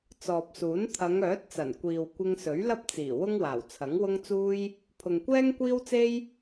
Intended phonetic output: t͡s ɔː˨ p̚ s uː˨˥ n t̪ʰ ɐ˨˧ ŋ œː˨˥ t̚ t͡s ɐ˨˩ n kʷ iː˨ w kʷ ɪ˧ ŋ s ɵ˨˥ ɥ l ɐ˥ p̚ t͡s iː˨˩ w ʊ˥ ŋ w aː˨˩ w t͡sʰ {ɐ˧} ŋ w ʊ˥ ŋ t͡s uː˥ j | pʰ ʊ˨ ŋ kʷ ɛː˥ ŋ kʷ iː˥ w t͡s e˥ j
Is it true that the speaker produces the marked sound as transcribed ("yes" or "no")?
no